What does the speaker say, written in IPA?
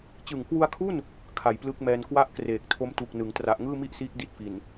t͡ɕ ɯ˨˩ ŋ k w u˧ a̯ kʰ u˥˩ n | kʰ a˨˩ j p l ɯ˦˥ k̚ m ɛː˧ n k w a˥˩ ʔ k r eː˨˩ k̚ tʰ o˦˥ m t u˨˩ k̚ n ɯ˩˦ ŋ t r a˨˩ ʔ ŋ ɯː˥˩ m i˥˩ ʔ s iː˦˥ k̚ d i˦˥ t̚ f i˨˩ n

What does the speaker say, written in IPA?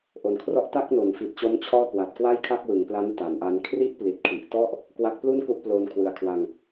ʔ o˨˩ n kʰ r ɔ˥˩ ʔ t a˥˩ k̚ n o˩˦ n f i˨˩ t̚ t͡ɕ o˦˥ m t͡ɕʰ ɔː˥˩ k w a˨˩ t̚ k w a˥˩ j kʰ a˥˩ k̚ w ɯ˩˦ ŋ p l a˦˥ n t a˩˦ n ʔ a˦˥ n kʰ r i˥˩ ʔ p l i˨˩ t̚ kʰ i˨˩ ʔ t ɔ˥˩ ʔ | k w a˦˥ k̚ p l u˥˩ n k u˥˩ ʔ p l oː˧ n kʰ w ɯ˨˩ a̯ kʰ w a˧ ŋ

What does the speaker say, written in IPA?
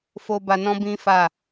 f o˧ b a˧ n ɔ̃˦ b ĩ˦ f a˦˨

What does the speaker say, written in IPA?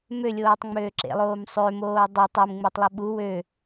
m ø lʲ oː tˤ ŋ͡m øː ǁ ḛ lˠ oː m sˤ ø m oː dˤ ɵ tˤ o m ŋ͡m e tˤ lˠ ɵ ɓ u w ø

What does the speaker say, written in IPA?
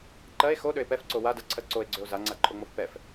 ǃ ɜ e̯ x o ɗ ø e̯ p ɛ f ǀ o w a d ɜ ǀʰ ɜ ǀ o e̯ ɡ͡ǀ ø o̯ z a ŋ͡ǀ a ǃʼ o ŋ͡m o f p ɛ f

